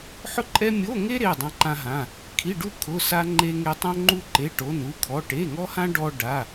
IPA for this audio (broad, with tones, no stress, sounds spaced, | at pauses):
ħ ʊ˥ ǃʼ ɛ˥ mʲ o˧˥˧ ŋ e˥ ɾ e˧˥˧ dˤ ã˥ ǃ ã˥ ɦ ã˧˥˧ | kʰ i˧˥˧ ɖ u˥ kʰ ʊ˧˥˧ s a˥ ŋ͡ǃ e˥ ŋ e˥ tˤ õ˥ ŋ͡ǃ u˥ ǃ e˧˥˧ ʈ o˧˥˧ n u˥ kʰ ɔ˧˥˧ ʈ e˧˥˧ ŋ ɔ˥ h ã˥ ɖ ɔ˥ ɖ a˧˥˧